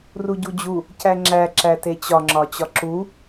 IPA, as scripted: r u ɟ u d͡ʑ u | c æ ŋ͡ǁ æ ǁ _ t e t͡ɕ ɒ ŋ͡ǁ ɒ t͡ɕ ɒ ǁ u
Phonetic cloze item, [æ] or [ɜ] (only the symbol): æ